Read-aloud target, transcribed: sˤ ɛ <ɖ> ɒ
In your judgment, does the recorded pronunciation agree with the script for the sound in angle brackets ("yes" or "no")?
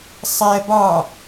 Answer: no